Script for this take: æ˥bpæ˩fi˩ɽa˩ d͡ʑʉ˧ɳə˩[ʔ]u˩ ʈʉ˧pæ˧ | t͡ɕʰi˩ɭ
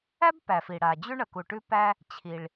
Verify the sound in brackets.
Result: incorrect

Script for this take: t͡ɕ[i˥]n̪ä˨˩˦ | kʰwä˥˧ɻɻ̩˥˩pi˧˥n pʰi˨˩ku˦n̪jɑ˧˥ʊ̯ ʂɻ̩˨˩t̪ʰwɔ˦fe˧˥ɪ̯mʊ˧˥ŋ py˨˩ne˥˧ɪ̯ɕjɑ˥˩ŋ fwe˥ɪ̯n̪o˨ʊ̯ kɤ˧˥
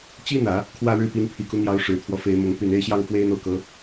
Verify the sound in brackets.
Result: correct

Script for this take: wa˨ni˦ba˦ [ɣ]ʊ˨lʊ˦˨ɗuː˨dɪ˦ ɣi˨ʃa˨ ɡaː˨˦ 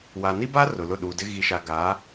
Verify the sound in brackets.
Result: incorrect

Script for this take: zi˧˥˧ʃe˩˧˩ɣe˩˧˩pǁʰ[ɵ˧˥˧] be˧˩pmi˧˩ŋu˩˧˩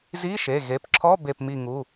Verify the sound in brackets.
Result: incorrect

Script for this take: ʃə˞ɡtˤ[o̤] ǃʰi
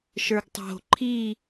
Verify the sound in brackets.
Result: correct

